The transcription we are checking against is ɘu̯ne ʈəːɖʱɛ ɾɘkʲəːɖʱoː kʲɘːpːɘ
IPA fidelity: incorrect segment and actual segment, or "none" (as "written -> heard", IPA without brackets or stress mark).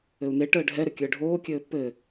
none